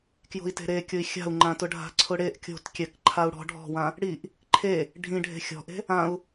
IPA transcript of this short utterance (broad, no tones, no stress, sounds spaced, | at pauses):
k j o̤ i̯ t e̤ ɾ e kʲ ʊ i̯ xʲ a̤ u̯ ŋ͡ǃ ã t ʊ ɖʱ a̤ ǀʰ ʊ ɽ e ʔ kʲ o̤ t kʲ ɛ k ǃʰ a u̯ ɽ ɔ̤ ɖʱ ɔ̤ w ã | ɽ i ʔ | ǃʰ e | ɖʱ ĩ ɖʱ e̤ xʲ ɔ̤ ʔ e̤ | ã u̯